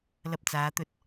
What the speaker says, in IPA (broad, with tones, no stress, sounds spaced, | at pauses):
l ɐ˧ p̚ t͡s aː˨˧ t̪ ɵ˧ t̚